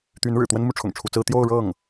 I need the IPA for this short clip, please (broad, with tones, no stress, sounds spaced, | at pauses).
t̪ y˧˥ n ɻ ɻ̩˨˩ t̪ w ə˥ n m u˧˥ ʈ͡ʂʰ ʊ̰˨˩ ŋ ʈ͡ʂʰ u˧˥ t͡s ɹ̩˥ t̪ j o˥˧ ʊ̯ ɻ ɤ˥˩ ŋ